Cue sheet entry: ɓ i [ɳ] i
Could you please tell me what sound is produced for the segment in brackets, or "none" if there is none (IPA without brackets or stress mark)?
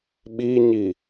ɲ